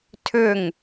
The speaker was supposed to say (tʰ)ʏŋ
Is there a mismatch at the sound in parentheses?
no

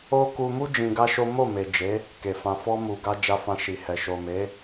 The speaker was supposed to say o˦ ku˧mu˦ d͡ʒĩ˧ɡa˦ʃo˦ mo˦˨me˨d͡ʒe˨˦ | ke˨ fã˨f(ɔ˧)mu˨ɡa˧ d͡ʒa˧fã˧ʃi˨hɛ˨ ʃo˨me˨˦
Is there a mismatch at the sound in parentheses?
no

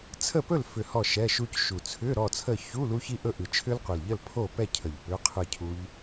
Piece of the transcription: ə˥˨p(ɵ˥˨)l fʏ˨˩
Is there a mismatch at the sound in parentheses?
no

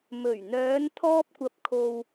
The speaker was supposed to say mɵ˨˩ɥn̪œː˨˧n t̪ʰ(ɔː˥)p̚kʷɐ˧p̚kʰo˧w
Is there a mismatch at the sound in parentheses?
no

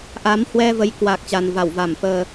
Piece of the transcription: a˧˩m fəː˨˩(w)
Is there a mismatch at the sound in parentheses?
yes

